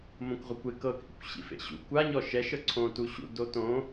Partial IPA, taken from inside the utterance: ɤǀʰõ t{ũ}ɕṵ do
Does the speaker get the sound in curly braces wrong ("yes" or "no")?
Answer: yes